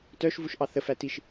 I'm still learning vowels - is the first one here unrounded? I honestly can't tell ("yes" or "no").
no